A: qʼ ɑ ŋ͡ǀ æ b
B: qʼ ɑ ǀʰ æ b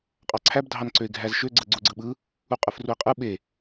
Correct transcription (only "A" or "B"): B